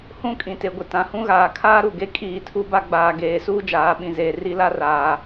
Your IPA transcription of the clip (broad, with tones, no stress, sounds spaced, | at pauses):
h ũ˦˨ kʼ ĩ˨ t e˨ ɡʷ ɪ˨ t ã˨ h ũ˦ ɣ aː˨ kʰ aː˦ ɾ u˨ ɡ e˦ kʼ iː˦˨ tʰ u˦ b a˦ ɡ͡b aː˨ ɡ eː˨˦ s uː˦ d͡ʒ aː˨˦ ɓ ĩ˨ z eː˨ r i˦ l a˦ r aː˨